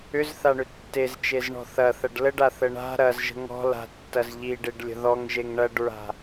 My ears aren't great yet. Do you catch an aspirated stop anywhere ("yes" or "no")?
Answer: no